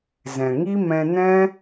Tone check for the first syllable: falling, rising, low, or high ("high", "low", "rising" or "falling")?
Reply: low